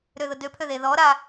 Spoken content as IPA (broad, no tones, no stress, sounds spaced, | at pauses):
ɾ ø ð ʊ d ø pʰ ø ð e ð ɔ ɾ a